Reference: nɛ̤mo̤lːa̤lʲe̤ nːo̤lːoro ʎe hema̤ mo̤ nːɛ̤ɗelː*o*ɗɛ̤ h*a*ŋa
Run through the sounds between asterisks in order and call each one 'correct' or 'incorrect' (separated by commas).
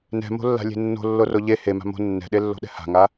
incorrect, incorrect